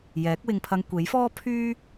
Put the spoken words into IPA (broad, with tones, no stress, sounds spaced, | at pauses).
j ɛː˨˥ k̚ w ɪ˧ ŋ pʰ ɐ˧ ŋ kʷ e˨˥ j f ɔː˥ pʰ yː˥